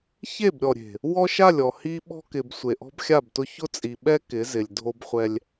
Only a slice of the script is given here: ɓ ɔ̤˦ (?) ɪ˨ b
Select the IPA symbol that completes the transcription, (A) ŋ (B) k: B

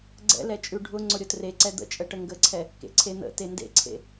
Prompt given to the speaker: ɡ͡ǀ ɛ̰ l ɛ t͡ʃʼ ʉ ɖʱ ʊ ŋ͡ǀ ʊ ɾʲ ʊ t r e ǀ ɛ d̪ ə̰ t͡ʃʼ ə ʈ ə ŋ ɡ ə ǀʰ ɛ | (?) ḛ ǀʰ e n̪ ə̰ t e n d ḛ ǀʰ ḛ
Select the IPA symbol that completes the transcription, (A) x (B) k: B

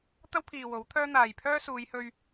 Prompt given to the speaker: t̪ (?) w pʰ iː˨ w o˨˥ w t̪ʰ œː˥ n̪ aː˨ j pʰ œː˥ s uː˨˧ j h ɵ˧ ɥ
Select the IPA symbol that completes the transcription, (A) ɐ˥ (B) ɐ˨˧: A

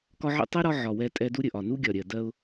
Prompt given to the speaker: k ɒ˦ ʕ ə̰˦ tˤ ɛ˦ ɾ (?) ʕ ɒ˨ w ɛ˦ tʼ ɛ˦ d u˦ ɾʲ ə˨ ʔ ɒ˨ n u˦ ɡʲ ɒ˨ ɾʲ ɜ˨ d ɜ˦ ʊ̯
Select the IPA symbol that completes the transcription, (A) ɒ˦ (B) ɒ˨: A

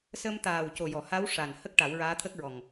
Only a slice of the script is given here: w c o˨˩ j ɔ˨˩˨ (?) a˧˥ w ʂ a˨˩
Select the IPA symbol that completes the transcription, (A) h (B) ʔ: A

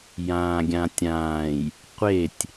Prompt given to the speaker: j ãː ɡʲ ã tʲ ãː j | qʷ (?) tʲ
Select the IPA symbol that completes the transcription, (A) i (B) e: B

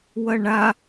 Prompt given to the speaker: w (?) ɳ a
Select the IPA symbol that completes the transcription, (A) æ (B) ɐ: B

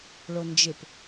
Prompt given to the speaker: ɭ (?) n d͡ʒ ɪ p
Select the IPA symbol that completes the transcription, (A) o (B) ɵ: A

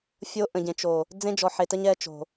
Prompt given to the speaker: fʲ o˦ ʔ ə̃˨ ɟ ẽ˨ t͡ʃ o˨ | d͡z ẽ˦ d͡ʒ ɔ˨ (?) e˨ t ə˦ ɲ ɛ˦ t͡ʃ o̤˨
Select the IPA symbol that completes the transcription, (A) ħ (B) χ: A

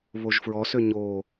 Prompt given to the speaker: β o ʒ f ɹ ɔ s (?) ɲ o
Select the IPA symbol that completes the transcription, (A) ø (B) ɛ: A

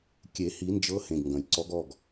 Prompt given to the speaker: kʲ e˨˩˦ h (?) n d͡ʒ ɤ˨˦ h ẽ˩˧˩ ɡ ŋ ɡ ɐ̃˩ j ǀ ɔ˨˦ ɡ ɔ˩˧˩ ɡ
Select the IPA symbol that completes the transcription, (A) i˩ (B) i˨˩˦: B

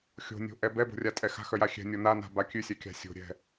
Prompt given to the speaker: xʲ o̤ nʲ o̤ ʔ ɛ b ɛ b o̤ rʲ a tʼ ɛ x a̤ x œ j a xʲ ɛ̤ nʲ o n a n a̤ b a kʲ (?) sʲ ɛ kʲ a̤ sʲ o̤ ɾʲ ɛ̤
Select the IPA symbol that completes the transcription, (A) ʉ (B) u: A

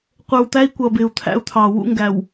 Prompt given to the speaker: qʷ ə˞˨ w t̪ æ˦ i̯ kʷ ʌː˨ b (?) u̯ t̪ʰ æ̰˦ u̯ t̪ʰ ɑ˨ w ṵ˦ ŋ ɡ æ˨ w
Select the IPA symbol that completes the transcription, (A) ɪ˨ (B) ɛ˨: A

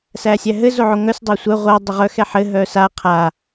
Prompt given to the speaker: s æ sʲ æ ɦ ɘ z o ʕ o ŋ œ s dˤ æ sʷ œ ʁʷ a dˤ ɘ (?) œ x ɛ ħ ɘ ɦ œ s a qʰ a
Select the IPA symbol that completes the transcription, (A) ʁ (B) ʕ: A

